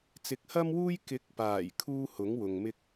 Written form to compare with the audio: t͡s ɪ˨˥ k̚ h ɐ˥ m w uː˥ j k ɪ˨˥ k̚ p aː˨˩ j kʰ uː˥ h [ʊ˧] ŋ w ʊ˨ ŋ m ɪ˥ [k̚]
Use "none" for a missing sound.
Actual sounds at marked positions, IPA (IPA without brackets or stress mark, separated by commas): ʊ˨˥, k̚